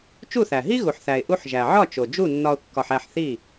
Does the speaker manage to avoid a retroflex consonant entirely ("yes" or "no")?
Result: yes